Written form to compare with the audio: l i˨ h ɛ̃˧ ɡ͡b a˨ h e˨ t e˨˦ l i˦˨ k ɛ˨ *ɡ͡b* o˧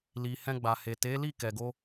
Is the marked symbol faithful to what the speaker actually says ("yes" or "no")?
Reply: no